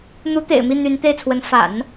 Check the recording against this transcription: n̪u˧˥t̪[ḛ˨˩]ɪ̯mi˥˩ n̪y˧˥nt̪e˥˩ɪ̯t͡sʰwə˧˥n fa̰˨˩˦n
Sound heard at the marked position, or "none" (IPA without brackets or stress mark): ḛ˨˩